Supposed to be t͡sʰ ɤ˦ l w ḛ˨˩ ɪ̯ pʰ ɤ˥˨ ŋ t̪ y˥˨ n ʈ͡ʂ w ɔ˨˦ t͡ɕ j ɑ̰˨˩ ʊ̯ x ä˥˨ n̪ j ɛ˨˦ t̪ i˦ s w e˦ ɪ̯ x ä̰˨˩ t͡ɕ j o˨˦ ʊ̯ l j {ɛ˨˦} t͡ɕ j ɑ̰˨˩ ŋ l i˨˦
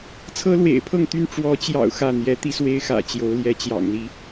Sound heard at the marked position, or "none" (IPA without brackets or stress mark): ɛ˨˦